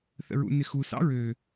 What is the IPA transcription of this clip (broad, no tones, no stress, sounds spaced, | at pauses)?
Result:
θ ə̰ ɹ ṵ n ɪ x u s ɑ̰ ɹ ø